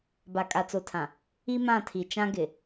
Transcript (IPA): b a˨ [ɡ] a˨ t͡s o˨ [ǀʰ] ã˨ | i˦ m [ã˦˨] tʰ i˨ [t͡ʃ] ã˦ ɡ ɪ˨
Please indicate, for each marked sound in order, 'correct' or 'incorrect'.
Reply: incorrect, incorrect, correct, correct

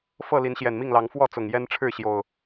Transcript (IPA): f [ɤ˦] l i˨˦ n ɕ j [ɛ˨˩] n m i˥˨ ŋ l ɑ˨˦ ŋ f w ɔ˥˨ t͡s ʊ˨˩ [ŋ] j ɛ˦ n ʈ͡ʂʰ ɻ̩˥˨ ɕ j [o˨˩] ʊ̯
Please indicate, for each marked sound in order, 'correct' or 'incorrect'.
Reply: incorrect, correct, correct, correct

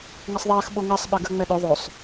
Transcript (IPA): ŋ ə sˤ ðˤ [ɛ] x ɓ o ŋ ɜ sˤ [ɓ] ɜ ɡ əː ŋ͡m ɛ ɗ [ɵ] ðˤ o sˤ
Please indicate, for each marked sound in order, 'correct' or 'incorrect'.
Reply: incorrect, correct, correct

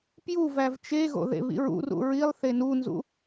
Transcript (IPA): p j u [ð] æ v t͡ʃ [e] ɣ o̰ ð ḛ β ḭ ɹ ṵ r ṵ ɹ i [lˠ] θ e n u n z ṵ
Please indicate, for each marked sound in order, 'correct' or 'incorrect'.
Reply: incorrect, correct, correct

